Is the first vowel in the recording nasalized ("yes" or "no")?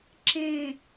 yes